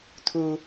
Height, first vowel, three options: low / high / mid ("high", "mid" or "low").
high